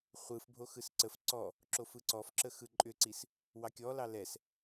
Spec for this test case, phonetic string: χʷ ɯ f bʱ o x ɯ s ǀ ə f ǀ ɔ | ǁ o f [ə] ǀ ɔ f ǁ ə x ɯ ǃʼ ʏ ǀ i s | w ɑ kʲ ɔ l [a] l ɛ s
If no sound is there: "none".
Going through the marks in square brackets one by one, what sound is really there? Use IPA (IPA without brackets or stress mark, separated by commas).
ɯ, ɑ